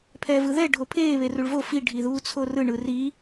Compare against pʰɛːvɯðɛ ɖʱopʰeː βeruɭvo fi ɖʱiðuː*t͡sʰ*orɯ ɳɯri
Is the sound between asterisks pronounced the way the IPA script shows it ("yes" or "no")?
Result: yes